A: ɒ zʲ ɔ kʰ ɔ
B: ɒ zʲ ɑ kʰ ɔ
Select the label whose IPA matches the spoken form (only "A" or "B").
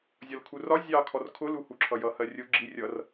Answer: B